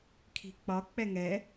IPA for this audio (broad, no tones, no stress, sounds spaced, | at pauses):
kʰ i̤ k͡p ɒ k͡p ɛ ŋ ɛ